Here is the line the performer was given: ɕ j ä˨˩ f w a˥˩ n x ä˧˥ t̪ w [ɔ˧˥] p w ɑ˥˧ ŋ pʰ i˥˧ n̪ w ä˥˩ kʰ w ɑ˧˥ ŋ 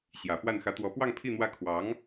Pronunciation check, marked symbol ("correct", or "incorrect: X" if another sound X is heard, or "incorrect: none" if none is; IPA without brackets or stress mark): correct